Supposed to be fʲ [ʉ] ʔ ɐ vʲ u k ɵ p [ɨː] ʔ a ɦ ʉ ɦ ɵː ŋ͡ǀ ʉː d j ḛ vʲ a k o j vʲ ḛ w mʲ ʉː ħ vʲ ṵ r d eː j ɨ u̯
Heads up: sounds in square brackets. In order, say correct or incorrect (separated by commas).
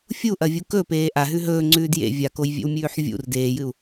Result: incorrect, incorrect